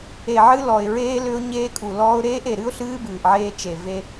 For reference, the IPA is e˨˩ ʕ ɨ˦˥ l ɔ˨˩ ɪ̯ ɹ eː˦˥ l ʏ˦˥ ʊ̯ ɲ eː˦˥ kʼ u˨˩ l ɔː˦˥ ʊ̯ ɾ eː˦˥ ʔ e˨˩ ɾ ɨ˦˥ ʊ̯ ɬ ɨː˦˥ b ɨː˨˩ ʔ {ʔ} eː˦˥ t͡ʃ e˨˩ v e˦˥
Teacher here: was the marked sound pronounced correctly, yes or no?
no